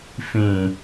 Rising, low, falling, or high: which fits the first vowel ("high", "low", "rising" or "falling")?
low